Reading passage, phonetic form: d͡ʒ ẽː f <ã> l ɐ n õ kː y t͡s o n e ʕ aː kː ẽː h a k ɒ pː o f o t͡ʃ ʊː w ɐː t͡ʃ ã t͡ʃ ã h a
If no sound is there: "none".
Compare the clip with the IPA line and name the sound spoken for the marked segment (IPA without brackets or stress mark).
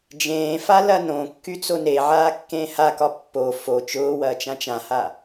a